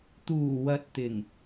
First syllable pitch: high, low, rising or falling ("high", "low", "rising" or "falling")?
low